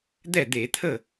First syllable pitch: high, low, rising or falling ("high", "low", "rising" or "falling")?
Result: falling